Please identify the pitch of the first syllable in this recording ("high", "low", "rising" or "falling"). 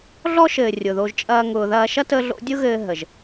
high